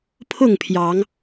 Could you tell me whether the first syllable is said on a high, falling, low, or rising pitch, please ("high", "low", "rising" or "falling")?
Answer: falling